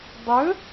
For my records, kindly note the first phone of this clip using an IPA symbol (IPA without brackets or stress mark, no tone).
dˤ